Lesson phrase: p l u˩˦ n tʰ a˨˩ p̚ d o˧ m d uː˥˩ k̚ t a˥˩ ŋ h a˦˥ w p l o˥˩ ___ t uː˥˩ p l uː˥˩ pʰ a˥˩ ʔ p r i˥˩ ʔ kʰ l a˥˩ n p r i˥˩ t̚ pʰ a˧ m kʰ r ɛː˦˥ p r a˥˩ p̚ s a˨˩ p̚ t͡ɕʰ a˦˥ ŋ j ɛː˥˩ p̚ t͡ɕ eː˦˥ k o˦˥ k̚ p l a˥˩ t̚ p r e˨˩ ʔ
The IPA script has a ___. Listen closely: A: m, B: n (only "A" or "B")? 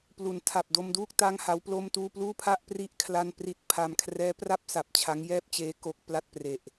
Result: A